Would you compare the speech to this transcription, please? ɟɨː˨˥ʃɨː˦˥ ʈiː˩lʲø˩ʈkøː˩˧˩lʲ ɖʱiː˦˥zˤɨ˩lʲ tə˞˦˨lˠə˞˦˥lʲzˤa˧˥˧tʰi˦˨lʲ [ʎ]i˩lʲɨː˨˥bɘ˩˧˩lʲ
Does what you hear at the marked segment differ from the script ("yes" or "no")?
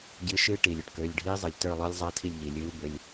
no